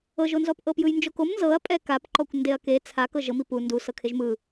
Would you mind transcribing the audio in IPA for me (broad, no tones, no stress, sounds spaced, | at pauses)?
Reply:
ɤ ʒ o n z ɔ p ʔ ɤ p j ɯ j n d͡ʒ o k o m n z ɤ ɐ̯ pʼ ɛ k a p ǃ ɔ kʷ n d e ɐ̯ k e t͡sʰ a k ɤ ʒ ɤ m i p u n d u s ɤ kʰ e ʒ m ɯ